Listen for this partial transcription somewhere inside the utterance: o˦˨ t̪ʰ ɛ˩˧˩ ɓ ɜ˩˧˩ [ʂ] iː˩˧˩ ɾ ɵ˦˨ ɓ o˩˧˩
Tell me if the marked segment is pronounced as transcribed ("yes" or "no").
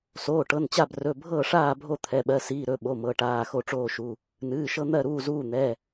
no